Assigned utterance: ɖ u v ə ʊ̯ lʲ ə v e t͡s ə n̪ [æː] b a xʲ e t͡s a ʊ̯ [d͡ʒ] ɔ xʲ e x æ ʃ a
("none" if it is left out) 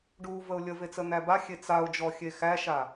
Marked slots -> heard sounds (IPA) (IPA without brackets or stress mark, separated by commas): æ, d͡ʒ